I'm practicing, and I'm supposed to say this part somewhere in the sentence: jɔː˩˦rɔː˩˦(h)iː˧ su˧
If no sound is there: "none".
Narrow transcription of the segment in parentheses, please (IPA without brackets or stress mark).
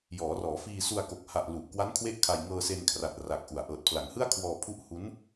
f